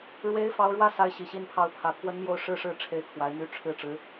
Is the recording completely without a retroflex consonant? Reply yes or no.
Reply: no